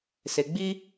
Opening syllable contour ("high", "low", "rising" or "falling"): low